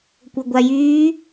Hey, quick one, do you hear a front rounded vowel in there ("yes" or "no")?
yes